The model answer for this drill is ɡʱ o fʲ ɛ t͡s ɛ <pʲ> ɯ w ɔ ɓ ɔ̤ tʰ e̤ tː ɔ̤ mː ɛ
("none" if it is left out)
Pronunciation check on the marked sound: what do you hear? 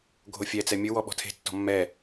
mʲ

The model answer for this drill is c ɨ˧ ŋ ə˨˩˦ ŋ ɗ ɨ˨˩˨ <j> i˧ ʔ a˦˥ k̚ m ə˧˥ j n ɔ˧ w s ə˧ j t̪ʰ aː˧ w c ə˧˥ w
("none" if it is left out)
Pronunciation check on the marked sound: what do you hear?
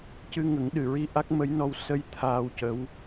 ɹ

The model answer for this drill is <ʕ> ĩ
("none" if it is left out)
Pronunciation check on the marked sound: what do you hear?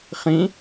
χ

